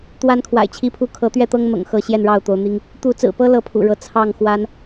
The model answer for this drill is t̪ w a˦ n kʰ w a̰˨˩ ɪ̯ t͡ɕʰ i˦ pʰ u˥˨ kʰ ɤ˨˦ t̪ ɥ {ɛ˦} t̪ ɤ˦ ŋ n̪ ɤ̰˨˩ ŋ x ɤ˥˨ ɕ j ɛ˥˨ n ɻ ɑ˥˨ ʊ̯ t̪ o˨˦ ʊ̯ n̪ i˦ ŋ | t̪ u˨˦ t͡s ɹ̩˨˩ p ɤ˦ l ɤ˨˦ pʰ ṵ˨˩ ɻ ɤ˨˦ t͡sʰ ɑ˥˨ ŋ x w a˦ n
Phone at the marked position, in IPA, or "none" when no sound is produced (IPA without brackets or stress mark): ɛ˥˨